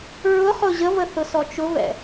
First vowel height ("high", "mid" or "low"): high